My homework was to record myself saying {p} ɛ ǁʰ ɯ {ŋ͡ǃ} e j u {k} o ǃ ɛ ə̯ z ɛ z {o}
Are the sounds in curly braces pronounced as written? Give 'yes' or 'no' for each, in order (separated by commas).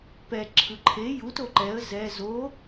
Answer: yes, no, no, yes